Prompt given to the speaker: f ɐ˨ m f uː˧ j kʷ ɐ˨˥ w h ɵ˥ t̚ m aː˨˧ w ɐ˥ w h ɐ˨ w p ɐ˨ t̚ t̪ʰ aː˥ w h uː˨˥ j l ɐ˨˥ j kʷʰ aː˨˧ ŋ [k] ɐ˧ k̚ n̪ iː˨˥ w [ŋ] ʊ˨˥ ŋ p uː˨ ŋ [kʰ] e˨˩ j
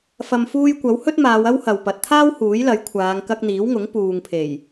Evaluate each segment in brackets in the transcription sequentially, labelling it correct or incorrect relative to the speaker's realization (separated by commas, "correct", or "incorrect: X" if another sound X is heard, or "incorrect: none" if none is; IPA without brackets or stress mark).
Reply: correct, correct, incorrect: pʰ